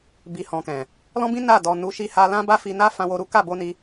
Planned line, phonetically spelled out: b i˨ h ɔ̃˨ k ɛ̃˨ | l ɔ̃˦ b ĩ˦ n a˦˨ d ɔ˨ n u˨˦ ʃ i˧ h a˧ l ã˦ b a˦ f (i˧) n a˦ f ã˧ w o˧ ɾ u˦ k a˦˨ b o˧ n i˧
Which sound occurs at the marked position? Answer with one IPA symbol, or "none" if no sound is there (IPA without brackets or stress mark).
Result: i˧